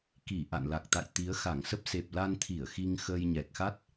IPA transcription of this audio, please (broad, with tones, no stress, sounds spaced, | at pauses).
k i˧˩ ʔ a̰˧˨ n l a˨˩ k̚ t̪ a̰˧˨ j t̪ i˨˦ ə̯ x a˧˩ ŋ s ə˦˥ p̚ s e˨˩ p̚ l a˧ n t̪ʰ i˧˩ ə̯ x i˧ ŋ x əː˧ j ɲ ɛ˨˩ k̚ x a˦˥ t̚